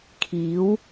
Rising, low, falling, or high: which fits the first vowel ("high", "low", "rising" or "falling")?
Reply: rising